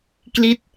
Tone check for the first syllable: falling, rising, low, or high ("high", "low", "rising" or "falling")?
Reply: falling